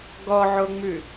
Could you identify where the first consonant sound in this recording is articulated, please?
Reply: velar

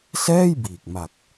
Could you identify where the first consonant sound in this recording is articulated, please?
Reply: alveolar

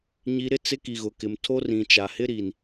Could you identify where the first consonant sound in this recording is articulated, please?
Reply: palatal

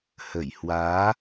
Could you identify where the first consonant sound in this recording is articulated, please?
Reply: glottal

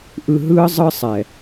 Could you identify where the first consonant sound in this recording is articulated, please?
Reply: glottal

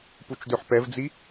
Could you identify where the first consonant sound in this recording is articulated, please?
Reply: labial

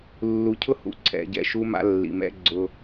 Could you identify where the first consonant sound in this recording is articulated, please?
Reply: alveolar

